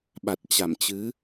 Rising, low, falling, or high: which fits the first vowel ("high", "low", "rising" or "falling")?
low